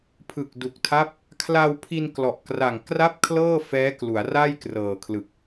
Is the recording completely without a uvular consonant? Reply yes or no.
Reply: yes